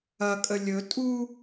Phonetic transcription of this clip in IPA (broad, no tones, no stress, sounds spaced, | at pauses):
ɐ kʼ ə lʲ ɵ tʼ u